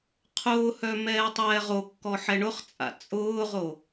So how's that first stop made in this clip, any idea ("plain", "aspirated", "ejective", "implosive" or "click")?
aspirated